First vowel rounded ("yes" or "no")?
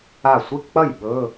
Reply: no